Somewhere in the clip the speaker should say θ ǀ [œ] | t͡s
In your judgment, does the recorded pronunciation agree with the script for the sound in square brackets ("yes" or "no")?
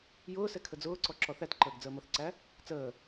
no